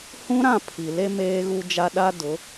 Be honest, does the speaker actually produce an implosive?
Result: yes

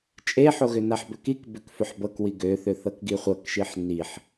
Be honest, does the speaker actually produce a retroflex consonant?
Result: no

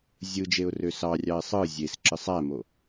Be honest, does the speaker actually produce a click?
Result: yes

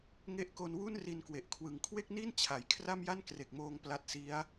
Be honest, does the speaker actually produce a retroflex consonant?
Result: no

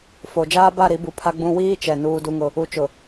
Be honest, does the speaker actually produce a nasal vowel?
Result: yes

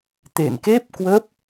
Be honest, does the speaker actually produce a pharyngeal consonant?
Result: no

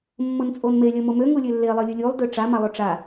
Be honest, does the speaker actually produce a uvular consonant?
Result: no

